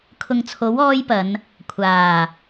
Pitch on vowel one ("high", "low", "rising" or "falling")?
low